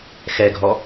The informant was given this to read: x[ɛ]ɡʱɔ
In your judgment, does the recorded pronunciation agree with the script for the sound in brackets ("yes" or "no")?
yes